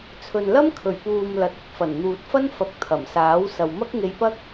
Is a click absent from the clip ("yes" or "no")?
yes